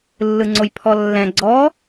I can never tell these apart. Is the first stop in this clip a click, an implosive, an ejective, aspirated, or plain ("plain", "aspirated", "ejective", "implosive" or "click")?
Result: click